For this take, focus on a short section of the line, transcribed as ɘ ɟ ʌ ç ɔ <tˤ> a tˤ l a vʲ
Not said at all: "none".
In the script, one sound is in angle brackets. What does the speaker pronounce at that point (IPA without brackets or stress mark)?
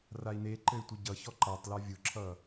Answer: ǃ